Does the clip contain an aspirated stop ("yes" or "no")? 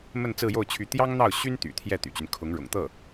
yes